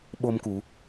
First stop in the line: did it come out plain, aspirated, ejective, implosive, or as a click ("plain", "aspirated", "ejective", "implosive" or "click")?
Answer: implosive